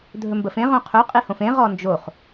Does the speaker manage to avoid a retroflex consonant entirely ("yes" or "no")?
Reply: yes